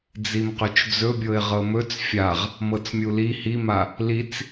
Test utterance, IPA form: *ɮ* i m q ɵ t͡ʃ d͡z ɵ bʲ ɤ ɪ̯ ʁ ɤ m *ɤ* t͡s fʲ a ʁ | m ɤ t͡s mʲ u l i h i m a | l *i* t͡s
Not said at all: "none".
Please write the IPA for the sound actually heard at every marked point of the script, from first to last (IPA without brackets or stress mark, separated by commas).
d͡z, ɵ, i